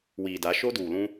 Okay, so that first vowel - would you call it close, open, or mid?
close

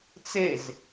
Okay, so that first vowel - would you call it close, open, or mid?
mid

